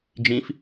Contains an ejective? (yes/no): no